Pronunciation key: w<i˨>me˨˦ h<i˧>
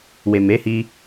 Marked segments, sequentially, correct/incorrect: incorrect: e˨, correct

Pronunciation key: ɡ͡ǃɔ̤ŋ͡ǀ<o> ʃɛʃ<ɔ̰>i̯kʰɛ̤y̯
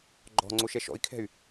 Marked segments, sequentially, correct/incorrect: correct, correct

